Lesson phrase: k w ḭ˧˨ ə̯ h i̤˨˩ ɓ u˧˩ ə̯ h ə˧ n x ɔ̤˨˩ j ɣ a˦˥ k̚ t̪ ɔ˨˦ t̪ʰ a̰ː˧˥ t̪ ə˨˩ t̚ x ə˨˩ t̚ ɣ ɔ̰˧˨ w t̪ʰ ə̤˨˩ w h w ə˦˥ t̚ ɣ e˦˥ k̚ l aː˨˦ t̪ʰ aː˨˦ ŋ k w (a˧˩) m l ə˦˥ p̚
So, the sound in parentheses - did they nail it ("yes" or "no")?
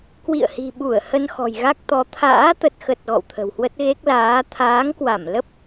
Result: yes